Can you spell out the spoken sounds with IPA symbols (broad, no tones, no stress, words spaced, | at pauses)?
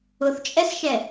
ʊθt͡ʃʼɛsʃɛ